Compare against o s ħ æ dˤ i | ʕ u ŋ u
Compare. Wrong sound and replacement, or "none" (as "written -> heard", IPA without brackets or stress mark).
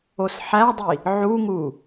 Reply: none